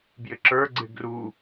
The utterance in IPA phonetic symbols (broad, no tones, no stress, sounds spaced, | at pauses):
b j ɪ ǁ ə˞ ɡ͡ǀ ɪ ɡ r u